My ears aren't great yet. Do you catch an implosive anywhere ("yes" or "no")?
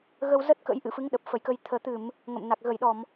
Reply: yes